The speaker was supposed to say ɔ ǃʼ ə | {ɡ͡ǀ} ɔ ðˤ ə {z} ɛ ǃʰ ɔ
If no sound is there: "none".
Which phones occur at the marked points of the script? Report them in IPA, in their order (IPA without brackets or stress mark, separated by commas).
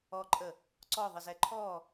ǀ, z